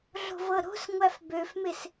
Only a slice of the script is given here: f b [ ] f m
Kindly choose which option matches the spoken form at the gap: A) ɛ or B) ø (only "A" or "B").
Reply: B